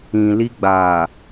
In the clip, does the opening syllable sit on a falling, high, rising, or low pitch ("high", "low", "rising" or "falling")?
low